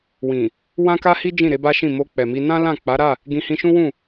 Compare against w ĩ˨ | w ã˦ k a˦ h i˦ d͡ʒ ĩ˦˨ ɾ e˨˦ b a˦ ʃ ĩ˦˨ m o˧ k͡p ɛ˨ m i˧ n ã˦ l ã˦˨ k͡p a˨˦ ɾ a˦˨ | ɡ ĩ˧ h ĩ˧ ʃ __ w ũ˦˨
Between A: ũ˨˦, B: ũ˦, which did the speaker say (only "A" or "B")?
B